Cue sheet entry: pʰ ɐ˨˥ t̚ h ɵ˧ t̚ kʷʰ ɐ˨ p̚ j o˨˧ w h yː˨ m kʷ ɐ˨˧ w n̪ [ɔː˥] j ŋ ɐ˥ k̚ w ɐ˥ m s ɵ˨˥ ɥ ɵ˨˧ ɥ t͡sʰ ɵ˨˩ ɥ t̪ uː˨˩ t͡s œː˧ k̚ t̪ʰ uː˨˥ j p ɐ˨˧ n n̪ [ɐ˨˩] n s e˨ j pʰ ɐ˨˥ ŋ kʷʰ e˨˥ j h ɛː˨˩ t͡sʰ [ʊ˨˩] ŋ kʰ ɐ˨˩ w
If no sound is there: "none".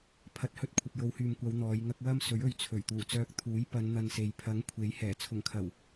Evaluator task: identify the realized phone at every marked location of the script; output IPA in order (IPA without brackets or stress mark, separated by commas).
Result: ɔː˨˧, ɐ˧, ʊ˨˩